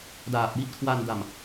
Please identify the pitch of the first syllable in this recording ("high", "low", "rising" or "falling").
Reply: low